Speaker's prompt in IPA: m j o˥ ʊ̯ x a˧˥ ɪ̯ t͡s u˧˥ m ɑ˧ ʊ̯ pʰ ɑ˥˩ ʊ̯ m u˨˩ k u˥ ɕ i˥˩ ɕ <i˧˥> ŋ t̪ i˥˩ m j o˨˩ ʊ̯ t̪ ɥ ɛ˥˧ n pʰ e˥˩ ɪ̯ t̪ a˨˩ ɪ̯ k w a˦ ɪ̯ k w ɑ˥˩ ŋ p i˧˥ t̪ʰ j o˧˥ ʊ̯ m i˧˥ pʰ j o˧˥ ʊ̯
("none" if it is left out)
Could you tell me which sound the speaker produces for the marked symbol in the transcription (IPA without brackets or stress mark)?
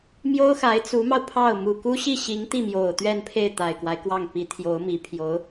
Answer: i˧˥